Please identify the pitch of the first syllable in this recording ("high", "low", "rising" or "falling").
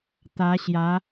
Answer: rising